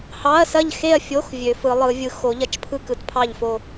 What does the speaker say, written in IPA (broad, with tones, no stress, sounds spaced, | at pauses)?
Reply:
h ɑ˧˥˧ ɐ̯ s ɐ˥˨ ʎ x e˥˨ ɐ̯ fʲ o˧˥˧ x vʲ ø˨˦ f ɯ˨˦ lˠ ɯ˨˦ vʲ ɯ˨˦ x o˨˦ ʎ ɐ˧˥˧ t͡ʃ pʰ ɯ˥˨ k ɯ˨˦ t pʰ ɑ˥˨ ʎ f o˥˨